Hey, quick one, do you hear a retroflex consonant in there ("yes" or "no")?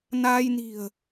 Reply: no